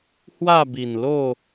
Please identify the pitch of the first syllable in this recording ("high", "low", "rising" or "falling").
falling